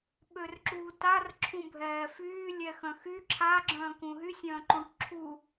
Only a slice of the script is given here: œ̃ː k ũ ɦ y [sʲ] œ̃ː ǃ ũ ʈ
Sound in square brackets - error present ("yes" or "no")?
no